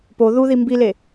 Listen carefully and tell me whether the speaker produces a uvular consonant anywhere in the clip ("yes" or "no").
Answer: no